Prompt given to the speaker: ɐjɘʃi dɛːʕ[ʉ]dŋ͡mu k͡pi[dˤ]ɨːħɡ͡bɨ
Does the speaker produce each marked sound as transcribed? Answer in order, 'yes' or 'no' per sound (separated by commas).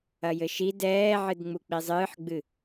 no, no